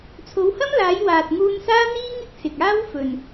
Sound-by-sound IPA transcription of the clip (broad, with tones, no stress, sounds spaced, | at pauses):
t͡sʰ o˨˧ w h ɐ˥ m l aː˨˧ j w aː˨ t̚ ŋ uː˧ n s aː˥ n̪ iː˥ ŋ ɪ˥ k̚ s ɪ˨ k̚ aː˥ w f ɵ˨ n